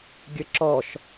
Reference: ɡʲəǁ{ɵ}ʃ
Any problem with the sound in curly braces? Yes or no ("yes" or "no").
yes